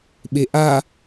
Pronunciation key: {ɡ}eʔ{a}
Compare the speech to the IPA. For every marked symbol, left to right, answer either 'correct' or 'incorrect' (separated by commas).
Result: incorrect, correct